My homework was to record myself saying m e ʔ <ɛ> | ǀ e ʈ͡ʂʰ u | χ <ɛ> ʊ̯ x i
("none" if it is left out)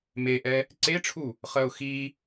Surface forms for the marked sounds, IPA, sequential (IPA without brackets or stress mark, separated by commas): ɛ, ɜ